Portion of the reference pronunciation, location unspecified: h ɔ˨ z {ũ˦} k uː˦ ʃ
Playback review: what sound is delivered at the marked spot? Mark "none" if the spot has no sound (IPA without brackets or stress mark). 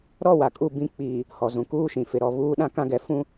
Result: ũ˨